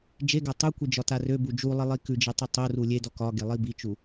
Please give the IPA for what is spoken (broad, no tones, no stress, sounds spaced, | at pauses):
d͡ʒ e ɡ a tˤ u kʷ i d͡ʒ ɒ t a r ø b u d͡ʒ u lˠ i lˠ i k ʉ d͡ʒ e tˤ ø tˤ o r u lʲ e d ɔ k ɒ ɡ e lˠ i b i t͡ʃ u